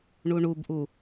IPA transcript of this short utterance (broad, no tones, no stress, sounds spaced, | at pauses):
ɳ u ɳ u b ʔ u